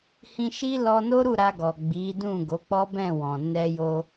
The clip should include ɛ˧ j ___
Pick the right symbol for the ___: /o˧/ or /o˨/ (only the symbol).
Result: o˧